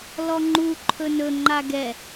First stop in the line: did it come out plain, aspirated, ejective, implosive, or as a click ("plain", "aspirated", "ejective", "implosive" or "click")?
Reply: click